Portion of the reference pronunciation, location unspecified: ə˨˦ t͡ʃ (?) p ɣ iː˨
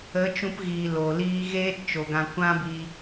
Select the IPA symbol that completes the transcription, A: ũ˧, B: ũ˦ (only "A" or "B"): A